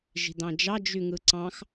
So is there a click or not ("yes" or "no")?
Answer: yes